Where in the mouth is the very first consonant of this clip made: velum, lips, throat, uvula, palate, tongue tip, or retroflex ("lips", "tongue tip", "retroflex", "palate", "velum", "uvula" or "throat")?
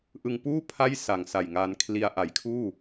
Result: throat